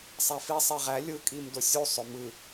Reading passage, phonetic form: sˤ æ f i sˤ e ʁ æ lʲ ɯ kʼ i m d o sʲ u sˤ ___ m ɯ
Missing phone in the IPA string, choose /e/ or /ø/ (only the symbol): ø